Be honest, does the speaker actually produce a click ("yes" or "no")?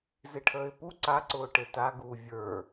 yes